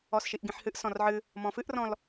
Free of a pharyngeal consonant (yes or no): no